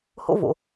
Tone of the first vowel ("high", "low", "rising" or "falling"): high